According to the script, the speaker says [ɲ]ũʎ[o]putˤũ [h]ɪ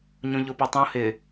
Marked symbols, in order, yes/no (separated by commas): yes, no, yes